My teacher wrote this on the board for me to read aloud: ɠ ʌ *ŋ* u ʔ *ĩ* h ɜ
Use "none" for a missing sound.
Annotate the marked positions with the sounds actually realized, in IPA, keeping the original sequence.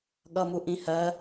m, ĩ

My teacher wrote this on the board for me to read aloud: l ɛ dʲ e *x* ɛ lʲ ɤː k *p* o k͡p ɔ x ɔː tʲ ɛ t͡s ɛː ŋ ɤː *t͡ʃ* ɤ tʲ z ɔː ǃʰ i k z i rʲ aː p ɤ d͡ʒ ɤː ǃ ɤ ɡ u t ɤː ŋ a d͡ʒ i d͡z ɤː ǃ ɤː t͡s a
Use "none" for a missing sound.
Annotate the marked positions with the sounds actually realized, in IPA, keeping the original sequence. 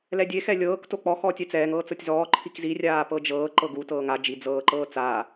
x, t, t͡s

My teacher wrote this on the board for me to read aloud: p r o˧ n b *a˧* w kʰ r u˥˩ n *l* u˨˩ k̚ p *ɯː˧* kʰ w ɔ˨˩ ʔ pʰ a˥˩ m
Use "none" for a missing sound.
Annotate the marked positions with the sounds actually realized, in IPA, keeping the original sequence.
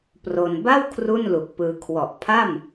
a˥˩, l, ɯː˧

